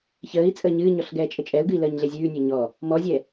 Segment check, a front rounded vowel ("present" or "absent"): absent